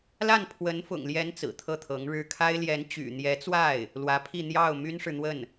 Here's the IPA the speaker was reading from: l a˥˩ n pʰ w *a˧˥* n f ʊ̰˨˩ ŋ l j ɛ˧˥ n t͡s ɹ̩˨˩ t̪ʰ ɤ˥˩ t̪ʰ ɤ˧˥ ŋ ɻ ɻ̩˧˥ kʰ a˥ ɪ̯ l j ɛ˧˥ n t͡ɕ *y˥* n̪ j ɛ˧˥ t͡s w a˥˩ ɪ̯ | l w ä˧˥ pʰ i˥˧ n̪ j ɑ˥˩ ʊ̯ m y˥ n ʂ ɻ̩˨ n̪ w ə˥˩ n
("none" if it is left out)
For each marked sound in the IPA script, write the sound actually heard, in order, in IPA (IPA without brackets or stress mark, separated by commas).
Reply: ə˧˥, y̰˨˩